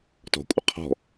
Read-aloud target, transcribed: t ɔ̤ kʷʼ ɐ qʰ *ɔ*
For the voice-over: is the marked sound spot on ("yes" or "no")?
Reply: no